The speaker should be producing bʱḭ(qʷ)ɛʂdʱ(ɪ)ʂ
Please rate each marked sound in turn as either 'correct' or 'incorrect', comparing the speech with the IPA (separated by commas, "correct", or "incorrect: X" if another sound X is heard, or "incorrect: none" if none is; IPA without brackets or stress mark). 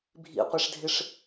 correct, correct